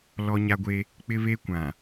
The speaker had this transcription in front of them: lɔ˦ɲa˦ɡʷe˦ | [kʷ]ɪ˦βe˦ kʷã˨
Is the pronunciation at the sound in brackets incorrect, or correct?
incorrect